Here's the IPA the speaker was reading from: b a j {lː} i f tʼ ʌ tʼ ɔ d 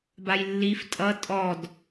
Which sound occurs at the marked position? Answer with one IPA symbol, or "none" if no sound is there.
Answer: lː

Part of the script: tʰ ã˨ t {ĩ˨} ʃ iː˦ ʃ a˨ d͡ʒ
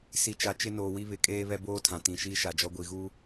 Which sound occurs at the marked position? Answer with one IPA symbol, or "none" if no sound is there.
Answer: ĩ˨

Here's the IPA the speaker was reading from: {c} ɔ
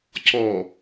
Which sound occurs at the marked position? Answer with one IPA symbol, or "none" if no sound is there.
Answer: c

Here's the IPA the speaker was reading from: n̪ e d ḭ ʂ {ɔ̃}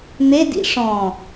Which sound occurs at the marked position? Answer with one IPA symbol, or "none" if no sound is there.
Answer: ɔ̃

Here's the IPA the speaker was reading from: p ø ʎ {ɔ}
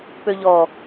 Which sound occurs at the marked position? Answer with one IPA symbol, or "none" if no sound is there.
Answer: ɔ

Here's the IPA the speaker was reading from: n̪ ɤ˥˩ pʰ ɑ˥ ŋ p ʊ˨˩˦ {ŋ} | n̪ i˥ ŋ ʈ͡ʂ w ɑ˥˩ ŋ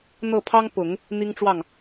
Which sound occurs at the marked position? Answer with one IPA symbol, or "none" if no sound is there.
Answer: ŋ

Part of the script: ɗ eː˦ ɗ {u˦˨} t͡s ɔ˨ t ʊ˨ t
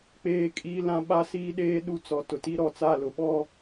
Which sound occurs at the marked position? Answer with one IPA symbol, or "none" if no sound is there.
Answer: u˦˨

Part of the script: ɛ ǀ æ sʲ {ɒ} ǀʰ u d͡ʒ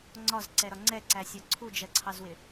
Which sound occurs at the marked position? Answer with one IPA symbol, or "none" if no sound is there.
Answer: ɒ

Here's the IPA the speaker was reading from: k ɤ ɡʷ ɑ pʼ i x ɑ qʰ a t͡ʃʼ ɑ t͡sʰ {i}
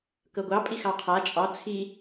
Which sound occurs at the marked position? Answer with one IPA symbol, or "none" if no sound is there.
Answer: i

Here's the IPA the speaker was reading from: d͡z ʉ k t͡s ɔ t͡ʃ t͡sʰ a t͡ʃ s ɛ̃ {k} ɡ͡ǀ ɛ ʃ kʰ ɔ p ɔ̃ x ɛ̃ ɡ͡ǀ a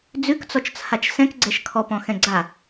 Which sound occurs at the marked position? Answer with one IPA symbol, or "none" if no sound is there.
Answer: k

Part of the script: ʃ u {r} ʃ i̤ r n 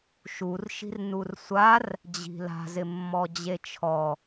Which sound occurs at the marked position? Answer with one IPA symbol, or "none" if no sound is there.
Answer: r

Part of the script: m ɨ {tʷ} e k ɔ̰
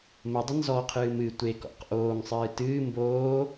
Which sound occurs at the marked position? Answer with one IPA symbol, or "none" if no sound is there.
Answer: tʷ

